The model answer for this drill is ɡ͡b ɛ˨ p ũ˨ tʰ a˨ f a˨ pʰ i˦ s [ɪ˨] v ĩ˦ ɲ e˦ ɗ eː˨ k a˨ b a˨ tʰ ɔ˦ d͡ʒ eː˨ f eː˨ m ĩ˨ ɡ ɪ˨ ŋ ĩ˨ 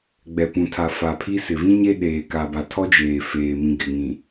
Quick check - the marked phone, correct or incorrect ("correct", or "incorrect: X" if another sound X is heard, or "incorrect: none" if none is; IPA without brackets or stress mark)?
correct